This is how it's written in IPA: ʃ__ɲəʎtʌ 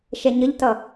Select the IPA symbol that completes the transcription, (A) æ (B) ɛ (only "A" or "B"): B